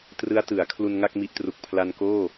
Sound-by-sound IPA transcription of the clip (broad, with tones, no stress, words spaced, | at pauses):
trɯ˦˥a̯tɯ˩˦a̯ kʰlu˧nŋa˥˩k̚ mi˦˥ʔtru˨˩k̚pʰla˧n koː˥˩